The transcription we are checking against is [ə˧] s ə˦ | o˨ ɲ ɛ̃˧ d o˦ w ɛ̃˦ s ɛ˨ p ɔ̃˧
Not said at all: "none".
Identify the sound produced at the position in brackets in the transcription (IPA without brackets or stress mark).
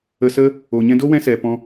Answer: ə˧